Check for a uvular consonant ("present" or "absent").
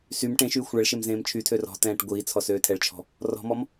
absent